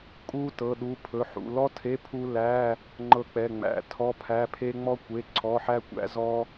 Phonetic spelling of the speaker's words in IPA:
kʼ u˥ t ɤ˧˥˧ ɗ u˧˥˧ pʰ ɵ˧˥˧ ħ ṵ˧˥˧ l ɔ˥ tʰ e˧˥˧ pʰ u˥ l æ˧˥˧ | ŋ͡ǃ ɤ˥ k͡p ɛ˧˥˧ ŋ͡m æ̰˧˥˧ tʰ ɔ˧˥˧ pʰ æ˧˥˧ pʰ e˥ ŋ͡m ɔ˥ kʷ e˧˥˧ ǀʰ ɔ˧˥˧ ħ æ˥ kʷ æ̰˥ z ɔ˥

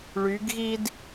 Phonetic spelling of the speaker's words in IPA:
ɭ y˧˥ ɡ ɣ i˥ d

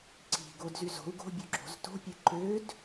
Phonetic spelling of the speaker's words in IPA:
ǀ i̤ ɡ o d z y z o̤ u̯ ɡ o̤ bʲ o ɡ͡ǁ o̤ z t o̤ pʲ e ǃ ø d

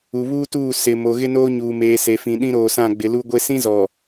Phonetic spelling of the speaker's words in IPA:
u˨ β uː˦ t uː˦˨ s ɪ˨ m o˨ ɣ ɪ˦ n oː˦ ɲ uː˨ m eː˨ s e˨ f ĩ˨ ɗ ĩ˦ ɾ oː˨ s ã˦˨ ɡ͡b ɪ˨ l u˦ ɡʷ e˦ s ĩ˦ z ɔ˨

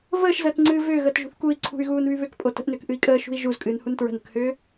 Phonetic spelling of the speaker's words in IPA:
v əː ʃ z əː t ŋ͡ǀ ɨː v ʏː ɣ əː t ʒ ṳ θ k uː i̯ ǀʰ ṳ y̯ ɣ uː n β y β ʏ k pʼ o t ə̤ ʔ n ʏ k ʔ ɨ i̯ kʼ əː ʃ ṳ i̯ ʒ u z kʼ ɨː n h u n t ɹ ə̤ n ə̤ k h ʏː

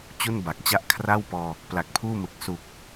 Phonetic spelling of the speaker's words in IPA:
t͡ɕ u˥˩ n b a˨˩ k̚ t͡ɕ a˥˩ ʔ kʰ r a˥˩ w p ɔː˧ | p l a˨˩ k̚ pʰ uː˥˩ m ɯ˨˩ k̚ s u˨˩ k̚

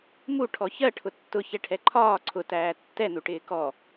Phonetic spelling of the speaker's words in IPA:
m u ʈʰ ɔ ç ɜ ʈʰ ʊ tː ʊ ç ɛ ʈʰ ɛ ǃʰ ɒː ǀʰ ʊ t æː tː ɛ n u ʈ ɪː k ɔ

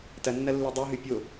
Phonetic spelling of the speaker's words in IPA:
t ɐ nː ɐ lː u dˤ ʉ ɦ ɨ pʲ o

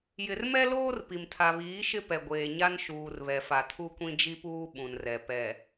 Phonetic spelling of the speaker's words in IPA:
j ɪ˨ r m ɛ˦ l oː˦ r p i˨ m tʰ a˨ β iː˨˦ ʃ ɪ˦ p ɛ˨ ɡʷ eː˨ ɲ a˦ n ʃ uː˨ r β ɛ˨ f a˨ tʰ u˦ kʷ ĩ˦ d͡ʒ i˦ p uː˦ ɓ ũ˨ n r ɛ˨ p ɛ˨

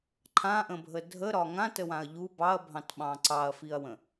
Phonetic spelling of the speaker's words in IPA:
ǃʰ ã ʔ ə̃ bʱ ə dʱ ə ɾ ɒ ŋ ã t ə w ã ɐ̯ ʎ u b ɑ ɐ̯ bʱ ɑ̃ t ɓ ɑ̃ ǀ ɑ ɐ̯ f i ɐ̯ w ə̃

